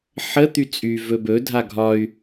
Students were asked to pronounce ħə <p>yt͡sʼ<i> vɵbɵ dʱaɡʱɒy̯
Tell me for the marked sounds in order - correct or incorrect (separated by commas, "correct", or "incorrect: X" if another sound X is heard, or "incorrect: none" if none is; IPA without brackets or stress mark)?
incorrect: t̪, incorrect: y